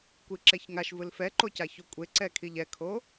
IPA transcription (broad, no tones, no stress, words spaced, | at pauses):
kʷiǁɛçŋaʃvɯl fɛǃocaço kʷʼeǀɛkʰiʎ ɛkʰo